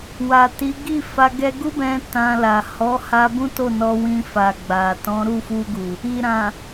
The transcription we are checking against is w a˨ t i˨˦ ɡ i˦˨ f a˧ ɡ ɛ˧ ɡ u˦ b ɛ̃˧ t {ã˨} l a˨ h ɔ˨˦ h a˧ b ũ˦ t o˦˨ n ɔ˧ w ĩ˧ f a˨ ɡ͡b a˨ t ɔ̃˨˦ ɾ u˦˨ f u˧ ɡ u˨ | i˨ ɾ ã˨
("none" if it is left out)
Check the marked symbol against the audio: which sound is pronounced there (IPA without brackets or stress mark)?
ã˧